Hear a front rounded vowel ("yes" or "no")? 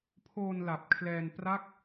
no